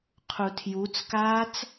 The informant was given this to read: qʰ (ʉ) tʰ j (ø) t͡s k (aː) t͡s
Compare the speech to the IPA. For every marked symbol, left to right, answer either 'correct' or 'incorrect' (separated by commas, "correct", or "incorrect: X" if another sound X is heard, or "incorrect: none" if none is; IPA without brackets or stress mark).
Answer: incorrect: u, incorrect: u, correct